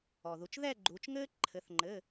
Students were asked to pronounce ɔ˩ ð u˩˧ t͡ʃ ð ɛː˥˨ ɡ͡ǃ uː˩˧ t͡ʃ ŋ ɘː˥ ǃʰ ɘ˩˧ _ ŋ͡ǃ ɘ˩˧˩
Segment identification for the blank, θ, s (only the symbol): θ